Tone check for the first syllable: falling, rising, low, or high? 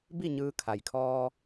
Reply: falling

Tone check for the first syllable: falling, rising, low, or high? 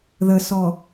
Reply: low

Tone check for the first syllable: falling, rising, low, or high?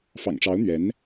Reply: low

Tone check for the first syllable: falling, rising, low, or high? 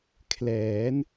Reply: rising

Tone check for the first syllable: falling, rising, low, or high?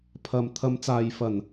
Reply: low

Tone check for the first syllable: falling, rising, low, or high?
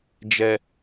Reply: low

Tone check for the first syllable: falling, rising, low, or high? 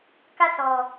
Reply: falling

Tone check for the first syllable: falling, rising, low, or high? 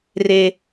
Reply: high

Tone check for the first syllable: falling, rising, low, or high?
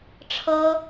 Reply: high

